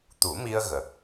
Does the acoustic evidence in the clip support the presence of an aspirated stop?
no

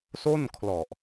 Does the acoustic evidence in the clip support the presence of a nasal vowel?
no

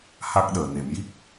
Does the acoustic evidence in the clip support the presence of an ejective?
no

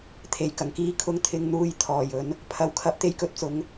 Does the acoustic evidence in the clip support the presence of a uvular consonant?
no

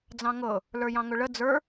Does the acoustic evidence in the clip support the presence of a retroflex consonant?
yes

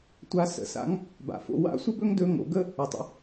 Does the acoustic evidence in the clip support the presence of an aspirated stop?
no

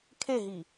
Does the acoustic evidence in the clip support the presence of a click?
no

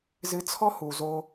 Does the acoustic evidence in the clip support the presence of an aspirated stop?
yes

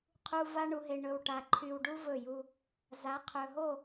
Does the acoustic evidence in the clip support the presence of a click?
yes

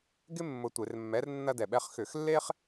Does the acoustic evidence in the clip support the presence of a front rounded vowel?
yes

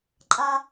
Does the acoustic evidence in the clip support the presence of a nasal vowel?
no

